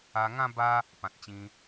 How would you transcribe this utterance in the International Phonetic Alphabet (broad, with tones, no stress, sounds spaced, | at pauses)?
a˧ ŋ ã˦ b a˦ | p ã˨ t̚ t͡ɕ ĩ˧